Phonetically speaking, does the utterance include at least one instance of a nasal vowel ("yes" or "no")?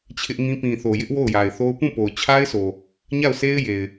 yes